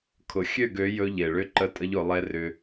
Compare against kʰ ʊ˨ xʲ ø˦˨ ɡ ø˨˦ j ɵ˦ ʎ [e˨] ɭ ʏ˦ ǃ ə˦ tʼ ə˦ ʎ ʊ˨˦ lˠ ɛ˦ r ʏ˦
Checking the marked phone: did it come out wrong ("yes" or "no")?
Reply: no